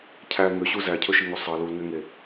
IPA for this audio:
cʰ æ ŋ ø ɕ u z æ cʰ ɵ ʃ i ŋ o sˤ ɑ l u l ŋ ɛ ŋ e

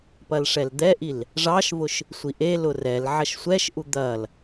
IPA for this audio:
p ɐ l ʂ ɛ l d̪ ɛ ʔ i l | ʐ ɑ ʃ v ʊ ʃ | sʷ i ʔ e l ʊ r ɛ l ʕ ɐ ʃ sʷ ɛ ʃ ʔ u d̪ ɐ l

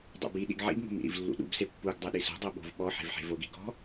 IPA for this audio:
dˤ ṵ b i ɗ ḭ ɡ ʕ ḭ b ŋ o̤ m ḭ ɾ ḭ v lː ṵ ɗ ṵ b s e pː u ɡ dˤ ɛ ɗ i s o̤ dˤ o ɓ o̤ v ɓ ɔ ħ e̤ v ħ e̤ v o ɡ i ɡ ɔ̤

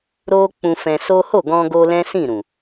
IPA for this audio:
ɾ o˧ k͡p ũ˧ f ɛ̃˧ s o˦ h o˦˨ ɡ ɔ̃˧ ɡ o˧ l ɛ̃˦ s ĩ˦˨ ɾ ũ˨

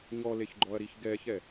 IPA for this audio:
ɲ ɔ l e ç ɡ͡ǃ ɔ ɐ̯ ɾ i ç ɡ ɛ ç ɛ

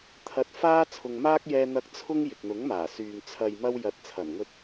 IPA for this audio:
t̪ʰ ɐ˨˥ t̚ f aː˥ t͡sʰ ʊ˨ ŋ m aː˥ k̚ j ɛː˧ n̪ ɐ˧ k̚ t͡sʰ ʊ˥ ŋ j ɪ˨ k̚ n̪ ʊ˨˥ ŋ m aː˨˩ s yː˨ ŋ t͡sʰ ɐ˨ j m ɐ˧ w j ɐ˨˥ t̚ t͡sʰ ɐ˨˩ n ŋ ɵ˧ t̚

